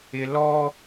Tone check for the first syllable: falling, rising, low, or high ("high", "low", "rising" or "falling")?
high